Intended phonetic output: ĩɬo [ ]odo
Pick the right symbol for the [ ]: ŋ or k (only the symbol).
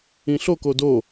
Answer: k